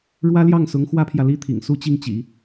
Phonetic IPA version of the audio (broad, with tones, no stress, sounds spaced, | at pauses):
ɻ w ä˥ l j ɑ˥˩ ŋ s ʊ˧˥ ŋ x w ä˥ pʰ j ä˨ l i˥ t̪ʰ ḭ˨˩ ŋ s u˥˧ t͡ɕ i˥˩ ŋ t͡ɕ ḭ˨˩˦